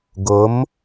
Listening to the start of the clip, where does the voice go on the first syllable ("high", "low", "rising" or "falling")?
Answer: rising